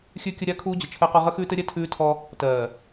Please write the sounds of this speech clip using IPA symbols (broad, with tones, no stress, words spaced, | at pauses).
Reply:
xʲʉ˦kʲə˦ ɾʲa˦ kʰuː˦d͡ʑə˨t͡ʃʰɜ˦qɔ˦ ʁə˦xʉː˦tɘ˦ɾʲɛ˦ tʰʉː˦tʰɔ˦ | tɜː˨